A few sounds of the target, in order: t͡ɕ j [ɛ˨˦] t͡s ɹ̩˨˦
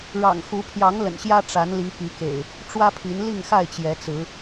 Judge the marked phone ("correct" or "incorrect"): correct